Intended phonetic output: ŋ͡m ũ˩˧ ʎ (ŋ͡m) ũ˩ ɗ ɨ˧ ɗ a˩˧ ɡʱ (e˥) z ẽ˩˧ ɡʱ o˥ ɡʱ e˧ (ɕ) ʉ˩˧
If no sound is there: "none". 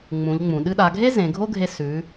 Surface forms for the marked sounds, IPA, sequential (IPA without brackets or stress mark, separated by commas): ŋ͡m, e˥, s